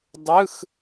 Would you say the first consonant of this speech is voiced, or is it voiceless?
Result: voiced